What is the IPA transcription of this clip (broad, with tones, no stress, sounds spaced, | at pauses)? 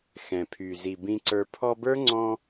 x ɛ̃˨ pʰ y˨ z i˨ b ĩ˧ ǀ ə˞˧ pʰ ɔ˧ b ə˞˦ ŋ͡ǀ ɔ̃˧